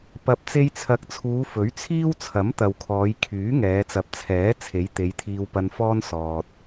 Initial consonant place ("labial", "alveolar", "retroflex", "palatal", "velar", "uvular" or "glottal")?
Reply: labial